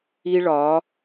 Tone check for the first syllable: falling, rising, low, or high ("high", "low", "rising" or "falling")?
high